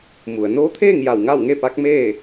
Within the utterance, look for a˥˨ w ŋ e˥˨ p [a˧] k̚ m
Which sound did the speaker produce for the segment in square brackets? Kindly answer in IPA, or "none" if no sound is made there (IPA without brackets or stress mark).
a˧˥